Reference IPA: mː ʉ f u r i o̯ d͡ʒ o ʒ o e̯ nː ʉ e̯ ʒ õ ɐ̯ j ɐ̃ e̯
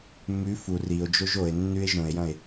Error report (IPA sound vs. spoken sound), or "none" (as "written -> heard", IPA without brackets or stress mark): ɐ̯ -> e̯